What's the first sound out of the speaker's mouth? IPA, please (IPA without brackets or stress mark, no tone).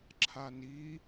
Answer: ǁʰ